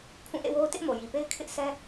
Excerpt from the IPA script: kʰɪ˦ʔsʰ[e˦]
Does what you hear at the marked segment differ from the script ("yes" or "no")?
yes